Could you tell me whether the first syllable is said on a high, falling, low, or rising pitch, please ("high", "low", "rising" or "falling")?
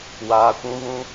low